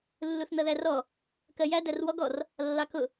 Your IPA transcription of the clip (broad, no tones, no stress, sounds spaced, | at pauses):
lː u θ n ʌ ð æ r ɔ | k ɜ j æ d æ r w ɔ ɡ ɔ r | lː ɑ k ʊ